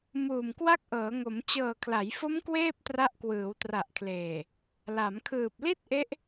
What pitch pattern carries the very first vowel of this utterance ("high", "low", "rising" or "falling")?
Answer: low